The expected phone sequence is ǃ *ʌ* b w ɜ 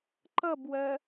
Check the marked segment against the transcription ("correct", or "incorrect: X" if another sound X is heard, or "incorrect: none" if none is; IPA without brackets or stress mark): correct